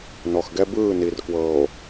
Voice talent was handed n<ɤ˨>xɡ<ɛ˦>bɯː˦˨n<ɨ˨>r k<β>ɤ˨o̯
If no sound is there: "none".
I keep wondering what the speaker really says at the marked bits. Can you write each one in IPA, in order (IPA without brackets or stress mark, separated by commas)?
ɔ˨, ɛ˦, i˨, w